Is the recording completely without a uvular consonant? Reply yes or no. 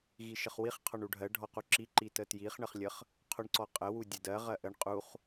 no